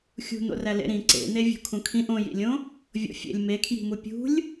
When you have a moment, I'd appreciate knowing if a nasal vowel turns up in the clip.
yes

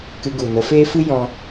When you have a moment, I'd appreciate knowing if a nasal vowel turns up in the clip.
yes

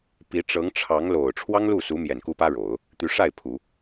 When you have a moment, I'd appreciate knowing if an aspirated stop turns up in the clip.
yes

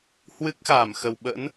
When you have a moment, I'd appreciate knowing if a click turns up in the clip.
no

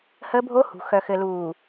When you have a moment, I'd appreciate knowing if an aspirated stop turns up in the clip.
no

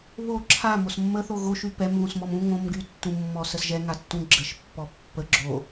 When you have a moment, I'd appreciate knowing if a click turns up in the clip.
yes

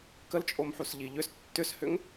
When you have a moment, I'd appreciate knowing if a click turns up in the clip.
no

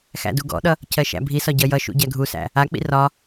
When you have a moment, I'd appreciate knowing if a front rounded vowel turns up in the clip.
no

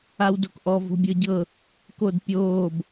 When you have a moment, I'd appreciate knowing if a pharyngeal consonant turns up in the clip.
no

